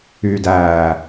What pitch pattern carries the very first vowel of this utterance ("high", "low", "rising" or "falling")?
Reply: low